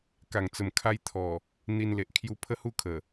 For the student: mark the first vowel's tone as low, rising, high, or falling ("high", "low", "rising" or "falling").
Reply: low